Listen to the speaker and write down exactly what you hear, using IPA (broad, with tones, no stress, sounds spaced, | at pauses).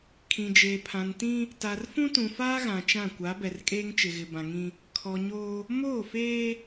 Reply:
kʰ ĩ˨ d͡ʒ eː˨ pʰ ã˨ n t ĩ˦ | t a˨ r f ũ˦ t ũ˨ f aː˦ ɣ ã˨ t͡ʃ ã˦˨ kʷ a˨˦ b ɛ˨ r kʼ eː˦ ŋ t͡ʃ ɪ˨ ɣ ɪ˨ b ã˨ ŋ ĩ˦ | kʰ ɔ˨ ɲ oː˦ | m oː˦˨ f eː˦